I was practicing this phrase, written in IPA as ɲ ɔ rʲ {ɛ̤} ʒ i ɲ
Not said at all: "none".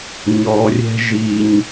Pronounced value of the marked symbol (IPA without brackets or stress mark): ɛ̤